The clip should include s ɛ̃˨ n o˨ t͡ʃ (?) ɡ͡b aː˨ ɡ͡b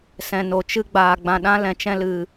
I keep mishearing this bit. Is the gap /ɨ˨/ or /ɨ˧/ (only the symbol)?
ɨ˧